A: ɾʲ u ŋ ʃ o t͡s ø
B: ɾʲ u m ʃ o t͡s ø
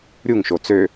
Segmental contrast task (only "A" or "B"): A